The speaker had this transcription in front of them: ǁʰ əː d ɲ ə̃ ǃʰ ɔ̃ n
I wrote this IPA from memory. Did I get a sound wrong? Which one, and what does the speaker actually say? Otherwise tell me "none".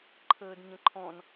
ǁʰ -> ǃʰ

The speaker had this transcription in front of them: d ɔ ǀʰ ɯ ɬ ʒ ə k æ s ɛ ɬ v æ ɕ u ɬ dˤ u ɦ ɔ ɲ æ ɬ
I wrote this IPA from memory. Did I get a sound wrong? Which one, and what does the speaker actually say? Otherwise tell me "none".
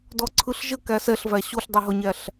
none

